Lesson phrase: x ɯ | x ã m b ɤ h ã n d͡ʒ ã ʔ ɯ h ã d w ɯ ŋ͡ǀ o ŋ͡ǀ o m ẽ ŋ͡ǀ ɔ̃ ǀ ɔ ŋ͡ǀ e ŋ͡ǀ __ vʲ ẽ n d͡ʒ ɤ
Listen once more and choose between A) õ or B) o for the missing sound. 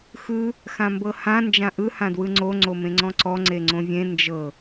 A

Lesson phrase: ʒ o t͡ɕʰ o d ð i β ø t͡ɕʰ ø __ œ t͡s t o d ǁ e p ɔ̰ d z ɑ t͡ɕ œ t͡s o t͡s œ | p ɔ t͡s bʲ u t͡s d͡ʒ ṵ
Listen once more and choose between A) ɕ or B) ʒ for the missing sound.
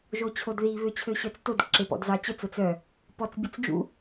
A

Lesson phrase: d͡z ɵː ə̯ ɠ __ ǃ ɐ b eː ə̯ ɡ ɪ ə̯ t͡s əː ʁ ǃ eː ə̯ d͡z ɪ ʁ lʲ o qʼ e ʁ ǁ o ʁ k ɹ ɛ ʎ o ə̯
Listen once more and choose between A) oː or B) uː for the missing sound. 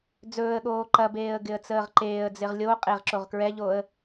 A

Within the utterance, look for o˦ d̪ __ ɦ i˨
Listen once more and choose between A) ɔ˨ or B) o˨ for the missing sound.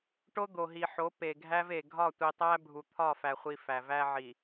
B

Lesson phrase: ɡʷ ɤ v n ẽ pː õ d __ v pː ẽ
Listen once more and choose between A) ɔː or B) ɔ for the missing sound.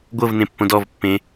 B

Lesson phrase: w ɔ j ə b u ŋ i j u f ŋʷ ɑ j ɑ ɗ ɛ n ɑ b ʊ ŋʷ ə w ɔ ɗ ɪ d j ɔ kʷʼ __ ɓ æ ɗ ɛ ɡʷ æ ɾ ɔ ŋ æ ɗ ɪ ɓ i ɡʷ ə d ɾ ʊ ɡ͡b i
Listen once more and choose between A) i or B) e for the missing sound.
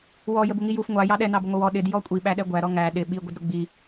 A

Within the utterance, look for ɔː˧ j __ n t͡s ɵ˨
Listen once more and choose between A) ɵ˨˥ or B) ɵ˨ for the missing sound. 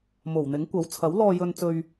B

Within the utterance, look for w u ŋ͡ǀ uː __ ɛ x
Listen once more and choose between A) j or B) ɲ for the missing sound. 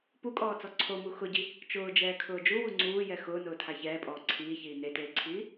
A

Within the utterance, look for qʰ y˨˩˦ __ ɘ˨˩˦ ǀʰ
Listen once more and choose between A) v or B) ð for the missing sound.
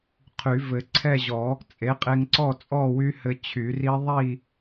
A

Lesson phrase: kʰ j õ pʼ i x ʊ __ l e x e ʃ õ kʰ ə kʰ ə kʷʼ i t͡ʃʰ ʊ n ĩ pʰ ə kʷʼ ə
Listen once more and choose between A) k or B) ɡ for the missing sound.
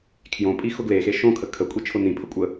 B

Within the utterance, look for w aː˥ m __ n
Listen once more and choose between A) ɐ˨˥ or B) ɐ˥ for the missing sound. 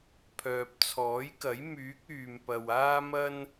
B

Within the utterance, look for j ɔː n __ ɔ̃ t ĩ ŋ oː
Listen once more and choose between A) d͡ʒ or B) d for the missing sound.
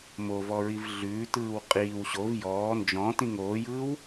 A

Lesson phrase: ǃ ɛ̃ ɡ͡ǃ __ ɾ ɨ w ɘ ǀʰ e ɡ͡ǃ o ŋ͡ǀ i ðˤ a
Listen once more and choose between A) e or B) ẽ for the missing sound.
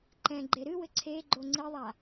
A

